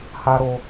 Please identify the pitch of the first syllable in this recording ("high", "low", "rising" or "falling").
high